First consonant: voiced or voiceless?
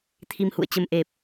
voiceless